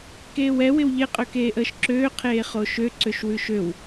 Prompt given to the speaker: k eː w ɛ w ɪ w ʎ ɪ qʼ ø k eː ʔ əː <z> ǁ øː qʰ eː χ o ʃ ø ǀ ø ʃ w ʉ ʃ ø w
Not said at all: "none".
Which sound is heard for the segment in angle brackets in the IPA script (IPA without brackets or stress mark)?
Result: ʃ